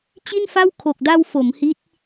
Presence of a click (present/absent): absent